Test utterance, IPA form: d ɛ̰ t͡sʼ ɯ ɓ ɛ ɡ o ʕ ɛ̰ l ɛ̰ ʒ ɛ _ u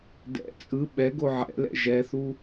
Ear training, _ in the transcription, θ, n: θ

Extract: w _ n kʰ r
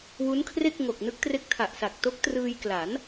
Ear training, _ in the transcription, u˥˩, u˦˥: u˦˥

